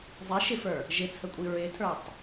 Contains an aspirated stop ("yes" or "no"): yes